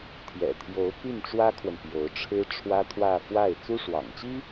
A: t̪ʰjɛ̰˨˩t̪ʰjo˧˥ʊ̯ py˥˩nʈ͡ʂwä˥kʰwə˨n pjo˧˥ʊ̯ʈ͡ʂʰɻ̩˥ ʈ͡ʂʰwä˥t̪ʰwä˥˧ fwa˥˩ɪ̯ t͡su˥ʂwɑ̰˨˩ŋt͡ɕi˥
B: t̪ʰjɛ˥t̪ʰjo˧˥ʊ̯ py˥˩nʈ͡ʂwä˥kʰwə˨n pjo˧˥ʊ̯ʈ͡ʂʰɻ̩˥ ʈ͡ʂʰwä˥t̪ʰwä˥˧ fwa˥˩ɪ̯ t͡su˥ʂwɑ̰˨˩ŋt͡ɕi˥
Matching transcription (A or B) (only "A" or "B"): A